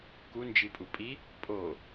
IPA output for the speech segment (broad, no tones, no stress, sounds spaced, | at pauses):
k u n d͡ʒ i pʼ u pʼ i | pʼ o